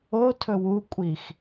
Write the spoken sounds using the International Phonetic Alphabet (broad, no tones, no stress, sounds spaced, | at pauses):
o tʰ ɵ w u kʷʼ i x